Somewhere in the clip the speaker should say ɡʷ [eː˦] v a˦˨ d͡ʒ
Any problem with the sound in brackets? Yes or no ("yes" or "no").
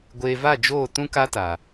yes